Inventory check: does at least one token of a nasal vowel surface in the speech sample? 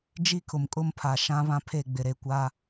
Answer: yes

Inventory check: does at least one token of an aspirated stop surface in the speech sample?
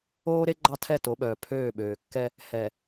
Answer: yes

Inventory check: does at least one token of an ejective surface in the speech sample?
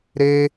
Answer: no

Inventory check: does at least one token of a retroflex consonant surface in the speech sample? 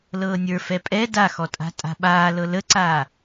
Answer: no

